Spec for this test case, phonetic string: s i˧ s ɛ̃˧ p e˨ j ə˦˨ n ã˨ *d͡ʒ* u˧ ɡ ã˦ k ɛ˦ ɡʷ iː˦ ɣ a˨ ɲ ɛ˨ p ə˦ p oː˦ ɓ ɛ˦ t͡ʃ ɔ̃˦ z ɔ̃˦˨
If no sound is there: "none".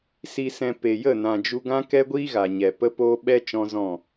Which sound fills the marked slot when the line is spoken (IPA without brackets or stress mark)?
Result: d͡ʒ